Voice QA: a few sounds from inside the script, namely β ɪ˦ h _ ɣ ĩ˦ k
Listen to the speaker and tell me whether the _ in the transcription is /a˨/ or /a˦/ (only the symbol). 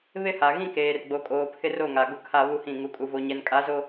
a˨